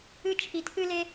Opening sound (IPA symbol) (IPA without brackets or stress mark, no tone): ɨ